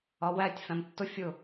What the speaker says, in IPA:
ɒ w æ tʲ f æ̃ m tː ʊ fʲ ʊ

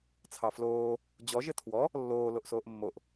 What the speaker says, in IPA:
t͡sʰ ɑ f l oː | d͡ʑ ɔ ʒ ɘ tʰ w ɔ | lː oː l o ʔ s oː ʔ mː o ʔ

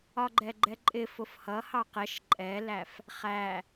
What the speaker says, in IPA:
ɒ ɡ͡ǃ ɛ ɡ͡ǃ ɛ ǃʼ ɪ f ʊ f h ʌ h ɑ q ɛ ʃ ǃʼ ɛ l æ f | χ æ

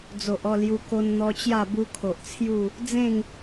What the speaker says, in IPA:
d͡z o˨ ʔ ɔ˥˧ l j u˧ k o˧ n n̪ ɔ˧ t͡ɕ j a˥˧ b u˦ kʰ o˨ ʔ t͡sʰ j u˥˧ | d͡z ẽ˥˧ ŋ

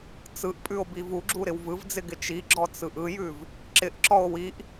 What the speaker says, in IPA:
t͡s ɯ ʔ pʼ ʉ o̯ b i v u ɡ͡ǁ u ɾ ɪ w v ɯ v d͡z ɪ ɡ ɪ t͡ʃ i ɡ͡ǁ ɔ t͡s ɯ ʔ ɯ j ʉ v | ǁ ɪ ʔ ǁ ɔ o̯ w i ʔ

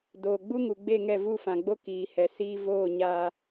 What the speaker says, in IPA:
d oː˨ ɡ͡b u˦ ŋ u˨ ɡ͡b e˦˨ ŋ ɛ˦˨ v u˦˨ f ã˨ ɡ͡b o˦ k iː˨ h ɛ˨ s iː˧ v oː˦˨ ɲ aː˧

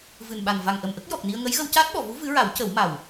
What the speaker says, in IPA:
v ɨ˨˩ n ɓ a˨˩ n v a˨˩ ŋ ʔ ə˨˩ m ʔ ə˦˥ k̚ j ɔ˨˩ k̚ n i˧ ə̯ ŋ ə˧˥ j ɣ ə˧ w c aː˦˥ t̚ ɓ ɔ˨˩˨ v u˧˥ v ɨ˧˥ ɹ a˨˩˦ w c ə˨˩˦ w m a˨˩ w

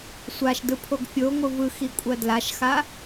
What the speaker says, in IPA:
sʷ a ʃ d ɯ pʰ o ɡ fʲ o ŋʷ ɯ v ɯ x i kʷʼ ɜ d l a ʃ x a

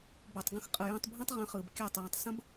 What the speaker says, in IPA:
b o˨ tˤ ɡ ə̃˧ x qʼ ɯ˨ j ə̃ː˧ tˤ bʱ ə̃ː˦ tˤ ʁ ə̃ː˧ χ ɯː˨ b kʲ ɯː˦˨ tˤ j ə̃ː˧ tˤ s ə̃˦ b

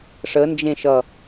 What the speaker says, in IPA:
ʂ ə n d͡ʒ ẽ ʃ ʌ

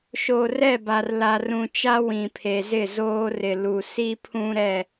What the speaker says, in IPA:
ʃ o˨ r ɛ˦˨ b a˨ r l a˨ r ũ˨ t͡ʃ a˦ w ĩ˨ pʰ e˨ z ɪ˦˨ z oː˦ r ɪ˨ l u˨ s i˦ pʰ ũ˦ ɾ ɛ˦˨

